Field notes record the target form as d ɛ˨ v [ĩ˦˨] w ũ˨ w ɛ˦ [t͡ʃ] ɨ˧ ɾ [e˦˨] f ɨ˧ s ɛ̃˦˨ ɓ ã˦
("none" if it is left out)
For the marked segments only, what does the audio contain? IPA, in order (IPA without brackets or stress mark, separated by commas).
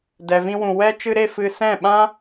ĩ˧, t͡ʃ, e˦˨